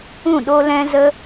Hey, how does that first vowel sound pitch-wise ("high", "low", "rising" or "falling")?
falling